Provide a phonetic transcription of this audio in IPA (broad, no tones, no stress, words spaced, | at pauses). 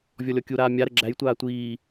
vʲɔlʲɔkʲuɾaː mʲaɾə ɡ͡ǁæjtʷaː tʷiː